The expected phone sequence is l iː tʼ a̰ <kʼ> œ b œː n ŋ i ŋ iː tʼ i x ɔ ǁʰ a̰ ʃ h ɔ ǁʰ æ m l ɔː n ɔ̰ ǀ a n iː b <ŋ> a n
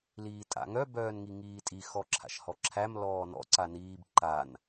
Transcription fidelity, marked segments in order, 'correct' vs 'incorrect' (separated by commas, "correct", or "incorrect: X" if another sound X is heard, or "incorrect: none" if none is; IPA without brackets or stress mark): incorrect: ŋ, incorrect: ǃ